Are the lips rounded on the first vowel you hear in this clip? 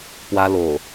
no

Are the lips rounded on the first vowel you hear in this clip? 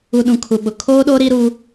yes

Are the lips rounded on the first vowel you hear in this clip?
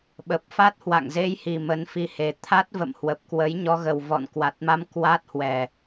no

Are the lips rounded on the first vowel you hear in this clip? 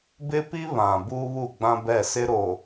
no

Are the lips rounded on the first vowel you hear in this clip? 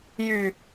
yes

